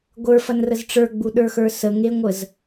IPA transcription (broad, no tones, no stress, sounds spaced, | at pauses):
ɡʷ ə˞ f ɐ n r ə z ʈ͡ʂ ə˞ ɡ͡b u ɗ ə˞ x ə˞ s ə ŋ e ŋʷ ə z